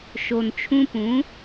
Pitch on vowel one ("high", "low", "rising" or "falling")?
low